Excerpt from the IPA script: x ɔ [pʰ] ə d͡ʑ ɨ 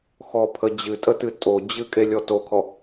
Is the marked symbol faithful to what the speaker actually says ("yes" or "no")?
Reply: yes